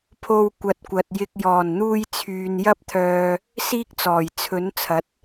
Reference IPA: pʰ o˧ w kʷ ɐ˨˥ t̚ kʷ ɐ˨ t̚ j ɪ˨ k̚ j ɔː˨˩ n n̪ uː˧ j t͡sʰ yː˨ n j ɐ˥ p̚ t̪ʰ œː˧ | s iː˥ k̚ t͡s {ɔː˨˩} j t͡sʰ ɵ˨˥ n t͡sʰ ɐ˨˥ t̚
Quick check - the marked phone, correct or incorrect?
correct